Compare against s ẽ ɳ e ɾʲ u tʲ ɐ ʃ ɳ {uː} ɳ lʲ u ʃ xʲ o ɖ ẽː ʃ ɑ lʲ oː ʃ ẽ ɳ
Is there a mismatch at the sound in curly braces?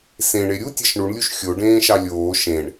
yes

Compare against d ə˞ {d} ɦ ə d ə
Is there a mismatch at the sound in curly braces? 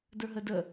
yes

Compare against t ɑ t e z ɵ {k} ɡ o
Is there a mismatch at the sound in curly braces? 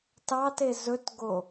yes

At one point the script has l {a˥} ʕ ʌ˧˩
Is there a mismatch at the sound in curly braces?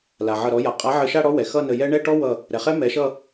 yes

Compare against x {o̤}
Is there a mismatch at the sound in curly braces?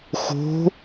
no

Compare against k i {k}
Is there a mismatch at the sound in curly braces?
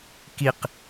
yes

